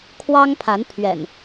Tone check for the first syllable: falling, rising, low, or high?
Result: high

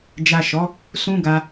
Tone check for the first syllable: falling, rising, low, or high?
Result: low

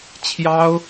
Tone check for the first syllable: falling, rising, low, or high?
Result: high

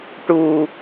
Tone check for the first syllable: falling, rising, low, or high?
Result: low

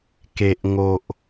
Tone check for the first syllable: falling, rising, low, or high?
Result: low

